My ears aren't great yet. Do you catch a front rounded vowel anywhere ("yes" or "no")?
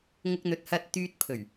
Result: yes